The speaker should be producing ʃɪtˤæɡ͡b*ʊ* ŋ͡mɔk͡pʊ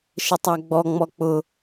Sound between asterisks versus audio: incorrect: ɔ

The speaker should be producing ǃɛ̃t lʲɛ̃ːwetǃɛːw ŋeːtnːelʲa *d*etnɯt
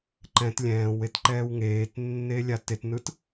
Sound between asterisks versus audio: incorrect: t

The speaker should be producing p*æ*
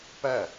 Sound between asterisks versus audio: correct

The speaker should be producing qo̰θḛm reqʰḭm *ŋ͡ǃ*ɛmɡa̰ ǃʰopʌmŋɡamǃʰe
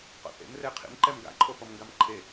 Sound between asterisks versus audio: incorrect: ǃ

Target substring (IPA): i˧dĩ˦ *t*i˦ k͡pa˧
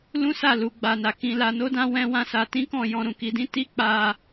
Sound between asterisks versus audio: correct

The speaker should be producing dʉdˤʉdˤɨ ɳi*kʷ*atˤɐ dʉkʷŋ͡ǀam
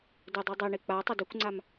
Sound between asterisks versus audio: incorrect: k͡p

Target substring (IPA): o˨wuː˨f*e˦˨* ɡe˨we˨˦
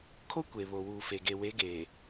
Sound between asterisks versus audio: incorrect: e˨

